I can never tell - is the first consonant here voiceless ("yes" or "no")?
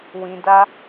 no